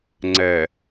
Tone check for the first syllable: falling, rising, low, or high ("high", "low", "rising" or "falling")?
low